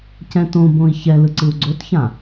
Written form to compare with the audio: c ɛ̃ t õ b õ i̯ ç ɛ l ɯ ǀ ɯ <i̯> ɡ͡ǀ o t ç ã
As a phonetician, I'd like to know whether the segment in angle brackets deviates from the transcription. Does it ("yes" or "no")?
yes